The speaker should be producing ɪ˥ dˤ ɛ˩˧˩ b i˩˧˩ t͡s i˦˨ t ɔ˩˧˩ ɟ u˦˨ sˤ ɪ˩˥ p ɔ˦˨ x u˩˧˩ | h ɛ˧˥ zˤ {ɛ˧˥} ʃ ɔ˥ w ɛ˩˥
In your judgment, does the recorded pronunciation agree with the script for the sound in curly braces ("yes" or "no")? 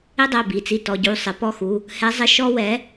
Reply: no